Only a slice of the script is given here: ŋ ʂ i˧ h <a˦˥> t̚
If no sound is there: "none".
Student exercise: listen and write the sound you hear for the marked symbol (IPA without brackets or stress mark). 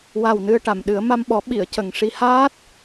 aː˦˥